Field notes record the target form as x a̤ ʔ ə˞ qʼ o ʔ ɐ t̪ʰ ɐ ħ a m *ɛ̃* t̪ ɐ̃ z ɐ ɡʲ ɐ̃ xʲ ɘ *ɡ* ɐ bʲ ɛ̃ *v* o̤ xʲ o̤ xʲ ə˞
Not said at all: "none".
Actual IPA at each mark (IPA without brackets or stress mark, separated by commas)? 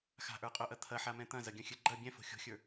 ɛ̃, ɡ͡ǃ, f